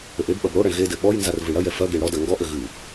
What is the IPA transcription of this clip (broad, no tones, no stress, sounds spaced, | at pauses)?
ɘ ʔ e b ɓ ɐ b ɽ o ɽ ɐ ɳ ɣ e d ɘ ɓ ɔ j n z a r v ɨ ɳ ɽ ɐ j ɛ f ɐ ɡ e ɳ ɽ ɔ d ɐ ŋ ɡ ɔ ʔ ɘ ɣ ɨ